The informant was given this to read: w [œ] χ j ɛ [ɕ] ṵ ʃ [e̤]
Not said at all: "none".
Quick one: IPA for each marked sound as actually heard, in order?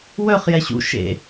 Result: œ, ɕ, ḛ

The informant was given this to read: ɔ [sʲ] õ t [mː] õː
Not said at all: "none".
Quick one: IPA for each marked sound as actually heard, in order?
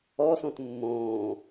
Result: s, mː

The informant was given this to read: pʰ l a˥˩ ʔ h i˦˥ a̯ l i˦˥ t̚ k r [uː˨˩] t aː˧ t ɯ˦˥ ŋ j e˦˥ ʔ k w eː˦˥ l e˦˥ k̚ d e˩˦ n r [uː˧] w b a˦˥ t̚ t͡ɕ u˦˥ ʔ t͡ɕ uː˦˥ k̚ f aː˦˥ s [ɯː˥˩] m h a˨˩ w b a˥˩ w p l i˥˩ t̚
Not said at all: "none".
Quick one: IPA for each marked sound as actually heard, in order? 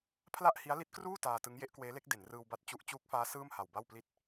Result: uː˥˩, ɯː˧, ɯː˥˩

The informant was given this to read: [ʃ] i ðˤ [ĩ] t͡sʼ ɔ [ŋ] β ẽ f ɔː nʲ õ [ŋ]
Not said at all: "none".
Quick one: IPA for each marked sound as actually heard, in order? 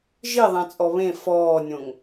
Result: ʒ, ẽ, none, ŋ

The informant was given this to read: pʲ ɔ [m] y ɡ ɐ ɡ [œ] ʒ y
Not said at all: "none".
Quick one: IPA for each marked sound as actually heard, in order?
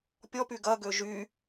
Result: p, ø

